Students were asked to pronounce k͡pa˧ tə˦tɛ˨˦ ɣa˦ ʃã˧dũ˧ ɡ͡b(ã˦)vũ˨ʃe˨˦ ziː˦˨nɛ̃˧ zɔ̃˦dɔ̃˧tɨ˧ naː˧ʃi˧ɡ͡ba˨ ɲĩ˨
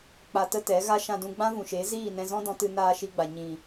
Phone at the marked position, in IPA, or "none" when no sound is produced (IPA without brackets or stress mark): ã˦